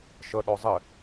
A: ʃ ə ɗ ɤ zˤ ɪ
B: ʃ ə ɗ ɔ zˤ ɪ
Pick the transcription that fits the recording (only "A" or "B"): B